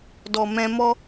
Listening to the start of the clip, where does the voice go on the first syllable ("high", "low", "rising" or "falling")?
low